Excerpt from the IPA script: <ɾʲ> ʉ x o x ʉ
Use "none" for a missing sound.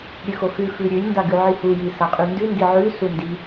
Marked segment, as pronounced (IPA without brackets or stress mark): ɾʲ